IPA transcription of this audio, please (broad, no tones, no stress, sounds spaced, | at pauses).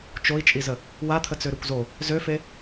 t͡ʃ o i̯ t͡ʃʼ i z ə | w a t̪ʰ ə t͡s ø ɾ ø kʷ z o | z ø f e